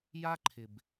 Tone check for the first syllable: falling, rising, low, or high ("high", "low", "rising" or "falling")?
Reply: high